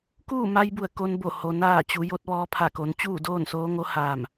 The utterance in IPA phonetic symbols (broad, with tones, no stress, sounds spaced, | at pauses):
k uː˥˨ m a˧ j b u˧˩ ə̯ k o˧ n b o˧˩ h o˩ n aː˧˩ t͡ɕ u˩˧ j o˧˥ t̚ ʋ ɔː˧ pʰ a˧˩ k o˩˧ n t͡ɕ uː˥˨ d oː˥˨ n s oː˧˥ ŋ o˧˥ h aː˧˩ m